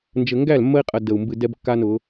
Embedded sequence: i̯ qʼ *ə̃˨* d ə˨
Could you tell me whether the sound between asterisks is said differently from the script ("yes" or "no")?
yes